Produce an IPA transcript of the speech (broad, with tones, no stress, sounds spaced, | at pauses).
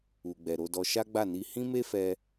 u˨ ɡ͡b ɛ˨ ɾ o˧ d ɔ˧ ʃ a˦ ɡ͡b a˦˨ n i˧ h ĩ˦ m e˦ f ɛ˧